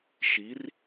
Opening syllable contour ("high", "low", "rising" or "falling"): rising